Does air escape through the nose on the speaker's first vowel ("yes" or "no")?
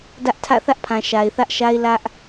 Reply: no